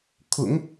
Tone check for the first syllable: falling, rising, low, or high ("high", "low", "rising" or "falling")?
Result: low